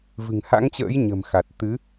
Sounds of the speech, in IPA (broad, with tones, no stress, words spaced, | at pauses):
vɨ̤˨˩ŋha̰˧˥ŋt͡ɕə̰ː˧˥j ɲə̤˨˩m xa˨˩t̚ t̪ɨ˨˦